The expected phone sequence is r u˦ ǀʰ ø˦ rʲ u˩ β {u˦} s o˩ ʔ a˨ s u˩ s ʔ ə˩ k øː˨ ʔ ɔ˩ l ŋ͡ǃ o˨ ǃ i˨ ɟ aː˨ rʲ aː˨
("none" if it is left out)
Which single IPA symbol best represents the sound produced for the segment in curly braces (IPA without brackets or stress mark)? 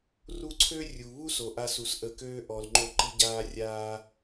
u˦